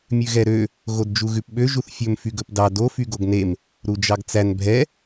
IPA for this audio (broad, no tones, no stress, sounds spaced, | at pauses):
mʲ ʉ ɣ ɛ ɾ ø | ɣ o d d͡ʒ u ɣ ʉ p ɓ ø ʒ u θ fʲ ɵ m f y ɡ ɵ p d ɑ d o f y ɡ o ɡ n e m | ɾ u d͡ʒ ɑ ɡ t͡s æ n bʱ ɛ